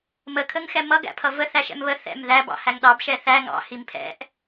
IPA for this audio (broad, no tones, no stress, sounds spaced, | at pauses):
m ə kʰ ə ŋ x ɛ m ʌ ɡ æ̰ pʰ ʌ v ə θ æ ʃ ɛ̰ m β ə θ ɛ̰ m ð æ b ɑ̰ h æ ŋ ɗ ɑ b ʃ ɛ θ æ ŋ ɑ̰ h i m pʰ ɛ̰ ʔ